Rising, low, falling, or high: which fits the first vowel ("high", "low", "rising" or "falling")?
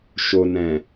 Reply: low